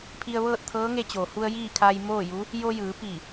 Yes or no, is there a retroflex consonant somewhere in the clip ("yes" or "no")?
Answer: no